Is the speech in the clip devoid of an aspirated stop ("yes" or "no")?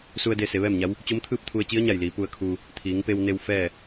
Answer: no